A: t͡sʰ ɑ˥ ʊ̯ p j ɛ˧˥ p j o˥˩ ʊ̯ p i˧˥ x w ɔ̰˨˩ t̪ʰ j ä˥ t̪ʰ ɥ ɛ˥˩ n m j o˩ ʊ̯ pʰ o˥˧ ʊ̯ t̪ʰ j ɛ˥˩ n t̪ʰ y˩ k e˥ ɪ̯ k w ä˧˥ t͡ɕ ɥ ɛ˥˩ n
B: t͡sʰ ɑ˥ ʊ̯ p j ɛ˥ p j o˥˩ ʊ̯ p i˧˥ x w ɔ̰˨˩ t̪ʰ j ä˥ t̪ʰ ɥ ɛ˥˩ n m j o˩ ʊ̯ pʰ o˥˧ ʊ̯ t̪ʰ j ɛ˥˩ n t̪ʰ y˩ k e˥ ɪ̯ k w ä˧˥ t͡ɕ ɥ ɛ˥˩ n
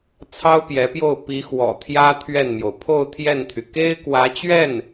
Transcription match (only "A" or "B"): A